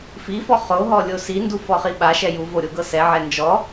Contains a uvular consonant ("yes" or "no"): yes